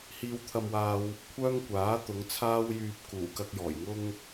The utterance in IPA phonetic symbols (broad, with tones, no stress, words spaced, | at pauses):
hiː˧wt̪ʰɐ˧mwaː˧w | kʷʰœː˥ŋkʷaː˨˥ t̪ʊ˨˧ŋt͡sʰaː˥wjyː˧p̚ kuː˨˩kɐ˧k̚jɔː˨˩jŋʊ˥ŋ